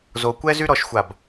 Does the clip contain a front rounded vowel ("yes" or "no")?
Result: yes